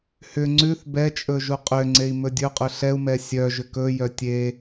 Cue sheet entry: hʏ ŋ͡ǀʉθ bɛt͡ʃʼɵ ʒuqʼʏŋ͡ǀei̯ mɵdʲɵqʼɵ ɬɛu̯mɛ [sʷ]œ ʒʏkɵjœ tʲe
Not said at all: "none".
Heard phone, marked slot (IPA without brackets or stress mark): sʲ